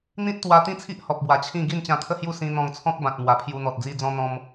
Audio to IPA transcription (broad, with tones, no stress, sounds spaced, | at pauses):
n̪ ĩ˦ t̚ t̪ w a˧ t̪ ĩ˥˧ t͡sʰ i˦ ʔ h ɔ˨ p̚ b w a˨˩ t͡ɕʰ ĩ˥˧ ɡ i˥˧ n t͡ɕ ã˧ t̪ʰ ə˥˧ h j u˥˧ s ĩ˧ n̪ ɔ̃˧ ŋ t͡sʰ ɔ̃˦ k̚ b ã˨ t̚ m w a˨˩ pʰ j u˧ n̪ ɔ˨ t̚ d͡z i˧ d͡z ɔ̃˧ n̪ ɔ̃˧ m